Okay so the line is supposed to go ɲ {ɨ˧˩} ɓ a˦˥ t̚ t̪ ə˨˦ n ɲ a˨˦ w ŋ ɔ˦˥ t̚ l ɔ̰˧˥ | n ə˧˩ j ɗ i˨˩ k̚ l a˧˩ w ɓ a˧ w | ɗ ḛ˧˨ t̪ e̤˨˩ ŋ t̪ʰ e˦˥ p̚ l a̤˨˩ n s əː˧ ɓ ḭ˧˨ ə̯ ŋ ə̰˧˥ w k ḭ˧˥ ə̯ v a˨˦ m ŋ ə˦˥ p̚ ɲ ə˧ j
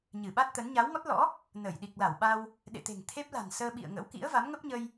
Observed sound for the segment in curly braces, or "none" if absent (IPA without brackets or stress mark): ɨ˧˩